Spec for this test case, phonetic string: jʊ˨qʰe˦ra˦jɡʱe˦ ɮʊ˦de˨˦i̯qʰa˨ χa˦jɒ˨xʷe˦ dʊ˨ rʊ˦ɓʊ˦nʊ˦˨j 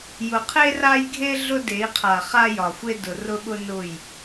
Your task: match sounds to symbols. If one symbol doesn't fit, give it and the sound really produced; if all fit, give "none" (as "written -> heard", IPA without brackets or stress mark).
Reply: none